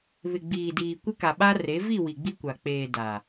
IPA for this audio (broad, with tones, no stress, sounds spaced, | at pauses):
β ɪ˨ ɡ͡b iː˨ d iː˨ kʷ ɪ˦ k a˨ ɓ a˦ r e˨˦ v i˦˨ w i˨ ɡ͡b i˦ kʷ a˨ k͡p eː˨ d a˨